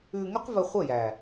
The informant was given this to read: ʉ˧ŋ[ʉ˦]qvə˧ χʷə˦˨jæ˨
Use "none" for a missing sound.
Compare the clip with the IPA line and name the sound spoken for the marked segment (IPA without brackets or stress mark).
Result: ʉ˦